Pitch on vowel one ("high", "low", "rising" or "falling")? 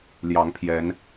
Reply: rising